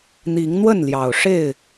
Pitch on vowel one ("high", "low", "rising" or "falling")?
rising